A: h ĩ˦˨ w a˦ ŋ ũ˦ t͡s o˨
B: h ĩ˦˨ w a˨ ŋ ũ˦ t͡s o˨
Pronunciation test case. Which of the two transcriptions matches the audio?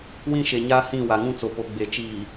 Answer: B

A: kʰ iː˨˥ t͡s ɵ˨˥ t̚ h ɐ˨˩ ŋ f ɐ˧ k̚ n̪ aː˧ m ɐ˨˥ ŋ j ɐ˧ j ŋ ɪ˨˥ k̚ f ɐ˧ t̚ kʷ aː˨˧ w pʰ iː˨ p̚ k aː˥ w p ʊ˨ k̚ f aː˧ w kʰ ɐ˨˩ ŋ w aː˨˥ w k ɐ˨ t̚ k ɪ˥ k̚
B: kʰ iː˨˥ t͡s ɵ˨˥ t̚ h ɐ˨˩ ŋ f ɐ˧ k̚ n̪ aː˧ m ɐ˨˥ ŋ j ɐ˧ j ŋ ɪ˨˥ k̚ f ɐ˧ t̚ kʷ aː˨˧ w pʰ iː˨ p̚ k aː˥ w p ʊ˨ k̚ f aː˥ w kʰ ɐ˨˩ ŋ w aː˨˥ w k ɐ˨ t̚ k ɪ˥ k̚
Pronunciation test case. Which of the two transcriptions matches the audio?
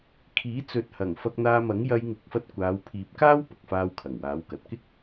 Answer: A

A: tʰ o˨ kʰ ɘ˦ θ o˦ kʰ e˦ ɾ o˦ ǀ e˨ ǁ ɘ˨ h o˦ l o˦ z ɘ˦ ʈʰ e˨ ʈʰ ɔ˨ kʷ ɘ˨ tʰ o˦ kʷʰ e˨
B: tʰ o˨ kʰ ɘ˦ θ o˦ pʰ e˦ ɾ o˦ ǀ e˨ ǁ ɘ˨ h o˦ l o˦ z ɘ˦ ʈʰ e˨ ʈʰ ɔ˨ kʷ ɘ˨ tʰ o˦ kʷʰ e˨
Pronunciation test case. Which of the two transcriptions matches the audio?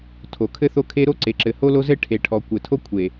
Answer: A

